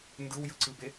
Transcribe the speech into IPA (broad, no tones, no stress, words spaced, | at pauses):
ndɯwjɯǀɯbe